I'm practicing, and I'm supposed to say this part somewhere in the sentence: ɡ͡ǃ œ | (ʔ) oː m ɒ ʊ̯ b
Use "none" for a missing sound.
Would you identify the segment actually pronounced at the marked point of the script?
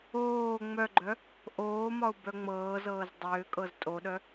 ʔ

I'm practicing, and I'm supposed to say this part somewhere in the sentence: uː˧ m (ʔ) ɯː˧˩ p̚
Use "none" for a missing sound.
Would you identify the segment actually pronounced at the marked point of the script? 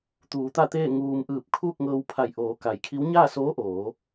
ʔ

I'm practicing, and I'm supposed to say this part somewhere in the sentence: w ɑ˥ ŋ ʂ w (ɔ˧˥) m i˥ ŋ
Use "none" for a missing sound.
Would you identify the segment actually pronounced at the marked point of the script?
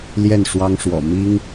ɔ̰˨˩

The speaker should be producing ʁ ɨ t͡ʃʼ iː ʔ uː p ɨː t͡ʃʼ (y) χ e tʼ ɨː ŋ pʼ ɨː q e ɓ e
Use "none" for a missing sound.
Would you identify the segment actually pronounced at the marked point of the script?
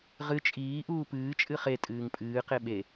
ɨ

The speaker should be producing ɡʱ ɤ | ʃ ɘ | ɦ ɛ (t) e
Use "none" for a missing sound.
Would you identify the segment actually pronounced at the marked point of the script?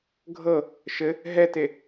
t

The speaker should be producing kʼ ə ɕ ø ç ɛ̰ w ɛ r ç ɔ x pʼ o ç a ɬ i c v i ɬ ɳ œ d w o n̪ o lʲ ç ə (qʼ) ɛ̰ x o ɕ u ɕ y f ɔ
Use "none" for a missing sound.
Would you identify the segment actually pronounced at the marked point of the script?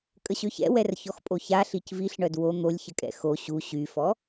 kʼ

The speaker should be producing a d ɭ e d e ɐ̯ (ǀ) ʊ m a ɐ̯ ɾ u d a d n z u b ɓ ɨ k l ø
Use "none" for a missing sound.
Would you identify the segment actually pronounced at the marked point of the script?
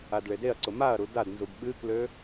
ǀ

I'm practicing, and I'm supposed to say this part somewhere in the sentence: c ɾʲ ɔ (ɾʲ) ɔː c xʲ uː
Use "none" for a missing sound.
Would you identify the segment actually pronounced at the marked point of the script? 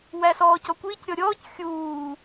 ɾʲ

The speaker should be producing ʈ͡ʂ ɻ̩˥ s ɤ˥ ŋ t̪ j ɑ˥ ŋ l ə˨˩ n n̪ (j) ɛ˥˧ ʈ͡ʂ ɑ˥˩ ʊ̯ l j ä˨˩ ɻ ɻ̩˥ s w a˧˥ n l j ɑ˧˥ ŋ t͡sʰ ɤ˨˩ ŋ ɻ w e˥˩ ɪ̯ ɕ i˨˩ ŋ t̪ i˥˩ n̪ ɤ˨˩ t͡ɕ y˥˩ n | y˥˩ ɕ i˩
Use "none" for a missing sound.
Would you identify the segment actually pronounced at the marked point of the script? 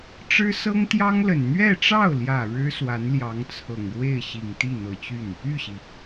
ɥ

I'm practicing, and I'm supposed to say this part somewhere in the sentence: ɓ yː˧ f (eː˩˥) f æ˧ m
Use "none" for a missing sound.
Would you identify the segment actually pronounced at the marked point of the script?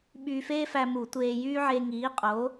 eː˥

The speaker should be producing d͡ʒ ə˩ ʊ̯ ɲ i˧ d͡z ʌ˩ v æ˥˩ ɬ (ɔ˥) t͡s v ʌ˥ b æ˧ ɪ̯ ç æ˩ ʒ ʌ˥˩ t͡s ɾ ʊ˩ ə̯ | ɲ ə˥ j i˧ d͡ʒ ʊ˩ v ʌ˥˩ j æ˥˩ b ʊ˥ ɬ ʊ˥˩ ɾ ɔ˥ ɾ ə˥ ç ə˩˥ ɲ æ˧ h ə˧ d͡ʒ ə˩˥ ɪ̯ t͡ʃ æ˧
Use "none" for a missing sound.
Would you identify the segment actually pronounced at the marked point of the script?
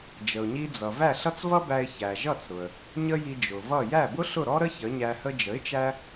ʌ˥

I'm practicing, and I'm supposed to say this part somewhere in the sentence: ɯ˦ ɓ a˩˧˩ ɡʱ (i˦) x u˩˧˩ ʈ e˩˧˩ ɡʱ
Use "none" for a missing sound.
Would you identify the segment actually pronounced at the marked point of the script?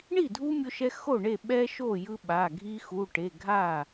i˦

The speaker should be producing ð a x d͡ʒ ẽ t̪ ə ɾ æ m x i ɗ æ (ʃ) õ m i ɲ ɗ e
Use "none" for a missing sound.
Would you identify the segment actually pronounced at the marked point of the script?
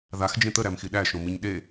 ʃ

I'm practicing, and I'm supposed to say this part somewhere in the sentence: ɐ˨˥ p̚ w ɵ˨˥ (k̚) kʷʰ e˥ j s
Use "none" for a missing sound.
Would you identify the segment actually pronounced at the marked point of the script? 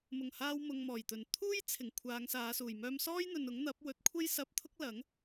t̚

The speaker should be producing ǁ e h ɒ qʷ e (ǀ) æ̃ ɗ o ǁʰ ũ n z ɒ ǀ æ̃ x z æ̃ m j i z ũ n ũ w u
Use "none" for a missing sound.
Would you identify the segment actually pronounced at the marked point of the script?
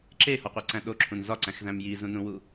ǀ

